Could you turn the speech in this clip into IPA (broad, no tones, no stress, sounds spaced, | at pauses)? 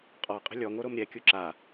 qʼ ɔ qʼ ə̤ lʲ ɔ ŋ o ɾ o m ɾʲ ɛ kʲ u ǁ a